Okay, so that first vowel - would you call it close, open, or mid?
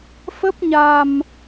mid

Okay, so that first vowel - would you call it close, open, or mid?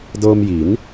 mid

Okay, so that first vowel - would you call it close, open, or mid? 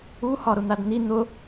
close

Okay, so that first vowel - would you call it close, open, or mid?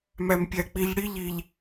open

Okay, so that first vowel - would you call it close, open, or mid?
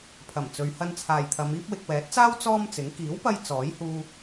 open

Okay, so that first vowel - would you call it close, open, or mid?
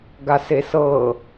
open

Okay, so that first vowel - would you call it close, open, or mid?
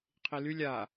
close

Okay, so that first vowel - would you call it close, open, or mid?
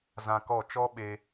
open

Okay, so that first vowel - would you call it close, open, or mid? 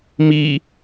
close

